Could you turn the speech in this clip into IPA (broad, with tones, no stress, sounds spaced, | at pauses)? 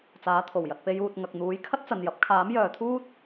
t͡s aː˨˥ t̪ʰ o˨˩ w j ɐ˨ t̚ p e˧ j uː˨ t̚ ŋ ɐ˨ k̚ n̪ uː˨˥ j kʰ ɐ˥ t̚ t͡s ɐ˨ n j ɐ˨˥ p̚ kʰ aː˨˥ m j œː˨ t̪ʰ uː˥ t̚